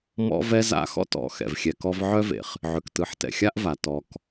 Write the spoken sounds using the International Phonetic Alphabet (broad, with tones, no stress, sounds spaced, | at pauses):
m ɔ̰˥ v ɛ˥ z a̰˥ x ɔ̰˥ t ɔ̰˨ x ɛ̰˩ v xʲ ɛ˨ k ɔ˦ v ʕ œ˥ v ḛ˩ χ | ʕ ʏ˨ k t ɯ˨ ħ t ɛ̰˨ xʲ a˥ ʔ v a˩ t ɔ˨ k